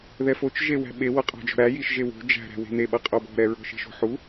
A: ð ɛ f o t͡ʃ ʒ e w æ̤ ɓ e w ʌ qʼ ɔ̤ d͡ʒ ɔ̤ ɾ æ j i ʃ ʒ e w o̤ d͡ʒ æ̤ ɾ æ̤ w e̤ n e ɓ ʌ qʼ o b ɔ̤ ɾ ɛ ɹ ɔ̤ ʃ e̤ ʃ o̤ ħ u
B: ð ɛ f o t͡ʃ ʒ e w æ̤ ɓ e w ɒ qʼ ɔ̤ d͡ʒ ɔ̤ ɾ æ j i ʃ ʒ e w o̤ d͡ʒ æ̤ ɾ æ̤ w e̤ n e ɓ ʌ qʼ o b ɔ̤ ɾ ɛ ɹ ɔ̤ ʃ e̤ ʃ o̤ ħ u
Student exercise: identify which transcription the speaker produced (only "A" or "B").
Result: A